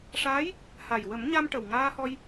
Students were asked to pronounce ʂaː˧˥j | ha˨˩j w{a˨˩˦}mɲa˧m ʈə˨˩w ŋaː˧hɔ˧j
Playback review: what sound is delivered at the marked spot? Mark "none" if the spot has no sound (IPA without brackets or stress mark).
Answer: ə˨˩˦